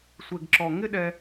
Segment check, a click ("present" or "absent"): present